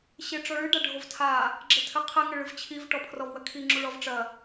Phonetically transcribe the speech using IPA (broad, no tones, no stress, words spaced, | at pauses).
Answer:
ɕeʈ͡ʂɔɭɨ ɖaɖʱovtʰa | ɡ͡ǁɘtʰɘqʰɛ ŋɘɭɨvt͡ɕʰiv ʈɔpʰrɔvwɐkʰi ŋ͡ǁuɭɔvʈ͡ʂɐ